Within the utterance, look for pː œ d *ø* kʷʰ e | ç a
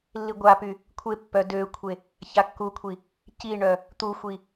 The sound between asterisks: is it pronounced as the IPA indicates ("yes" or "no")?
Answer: yes